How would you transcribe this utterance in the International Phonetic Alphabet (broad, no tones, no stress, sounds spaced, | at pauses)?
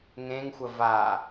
ŋ ẽ ŋ xʷ ə v a